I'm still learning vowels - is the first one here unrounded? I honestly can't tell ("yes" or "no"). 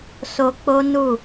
no